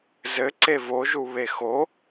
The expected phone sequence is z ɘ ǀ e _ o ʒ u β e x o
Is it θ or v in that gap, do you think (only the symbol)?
v